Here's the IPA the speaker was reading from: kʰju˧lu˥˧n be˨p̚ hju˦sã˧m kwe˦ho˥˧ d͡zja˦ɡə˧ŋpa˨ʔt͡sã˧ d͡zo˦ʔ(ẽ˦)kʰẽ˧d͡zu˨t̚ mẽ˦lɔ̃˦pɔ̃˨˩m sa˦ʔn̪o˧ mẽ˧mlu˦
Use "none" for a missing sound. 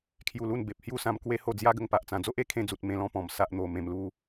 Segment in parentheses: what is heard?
e˦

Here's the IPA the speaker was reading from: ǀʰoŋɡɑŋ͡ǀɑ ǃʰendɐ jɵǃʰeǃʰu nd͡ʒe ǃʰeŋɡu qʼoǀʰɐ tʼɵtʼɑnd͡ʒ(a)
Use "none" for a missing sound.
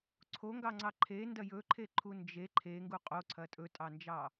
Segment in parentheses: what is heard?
ɑ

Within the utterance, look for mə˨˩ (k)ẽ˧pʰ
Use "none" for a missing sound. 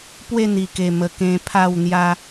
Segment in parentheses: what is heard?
k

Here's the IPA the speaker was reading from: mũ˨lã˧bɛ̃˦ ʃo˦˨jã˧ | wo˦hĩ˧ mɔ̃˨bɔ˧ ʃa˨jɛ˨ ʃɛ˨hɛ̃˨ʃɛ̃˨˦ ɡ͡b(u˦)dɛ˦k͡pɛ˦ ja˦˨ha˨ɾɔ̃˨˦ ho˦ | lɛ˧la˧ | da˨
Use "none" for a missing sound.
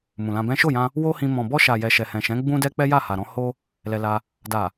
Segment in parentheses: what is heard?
ũ˦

